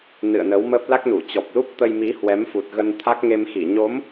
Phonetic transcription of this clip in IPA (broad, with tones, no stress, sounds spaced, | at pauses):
n ɨ̰˧˨ ə̯ n ə˨˦ w m ə˦˥ p̚ l a˦˥ k̚ n u˧˩ t͡ɕ ɔ˨˩ p̚ l u˦˥ p̚ t̪ ə˧ j m i˨˦ h w ɛ˨˦ m f u˨˩ t̚ ɣ ə˧ n t̪ʰ a˦˥ k̚ ŋ e˧ m x i˧˩ ɲ o˨˦ m